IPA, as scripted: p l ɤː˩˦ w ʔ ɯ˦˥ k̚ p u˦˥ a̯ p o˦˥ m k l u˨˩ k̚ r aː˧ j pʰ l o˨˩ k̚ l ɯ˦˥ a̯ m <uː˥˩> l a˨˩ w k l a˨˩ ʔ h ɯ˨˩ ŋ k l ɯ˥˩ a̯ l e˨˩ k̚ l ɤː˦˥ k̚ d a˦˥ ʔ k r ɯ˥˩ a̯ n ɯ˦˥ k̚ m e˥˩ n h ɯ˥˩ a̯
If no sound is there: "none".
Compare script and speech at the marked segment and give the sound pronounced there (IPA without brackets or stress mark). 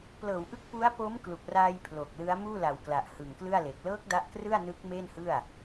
uː˥˩